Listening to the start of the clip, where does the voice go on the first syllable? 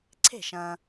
falling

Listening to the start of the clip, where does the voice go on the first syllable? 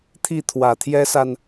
falling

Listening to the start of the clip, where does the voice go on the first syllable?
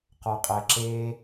low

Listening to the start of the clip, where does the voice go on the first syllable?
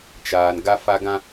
low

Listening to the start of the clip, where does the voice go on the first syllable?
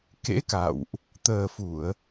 rising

